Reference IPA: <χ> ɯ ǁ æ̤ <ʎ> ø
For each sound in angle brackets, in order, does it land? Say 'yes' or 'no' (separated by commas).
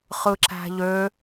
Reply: yes, yes